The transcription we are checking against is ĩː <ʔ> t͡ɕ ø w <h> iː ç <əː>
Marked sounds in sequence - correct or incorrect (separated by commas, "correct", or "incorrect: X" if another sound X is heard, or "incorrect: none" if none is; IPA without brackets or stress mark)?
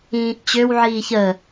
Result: correct, incorrect: ʕ, correct